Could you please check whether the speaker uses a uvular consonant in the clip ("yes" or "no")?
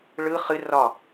yes